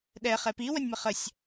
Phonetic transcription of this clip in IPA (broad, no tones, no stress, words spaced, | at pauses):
ɗɛ χɛpi wənʲməχəsʲ